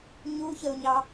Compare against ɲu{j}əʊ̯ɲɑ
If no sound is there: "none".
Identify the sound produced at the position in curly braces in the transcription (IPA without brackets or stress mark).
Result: ç